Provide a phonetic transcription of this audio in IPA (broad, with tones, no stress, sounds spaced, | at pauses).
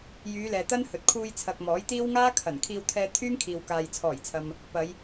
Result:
j yː˨˧ l ɛː˨ t̪ ɐ˥ n h ɵ˨ t̚ kʰ uː˧ j t͡sʰ ɐ˨ k̚ m ɔː˨˥ j t̪ iː˥ w ŋ aː˥ kʰ ɐ˨˩ n kʰ iː˧ w t̪ʰ ɛː˧ t̪ʰ yː˥ ŋ kʰ iː˨ w k aː˨ j t͡sʰ ɔː˨˩ j t͡sʰ ɐ˨ m | p ɐ˨˧ j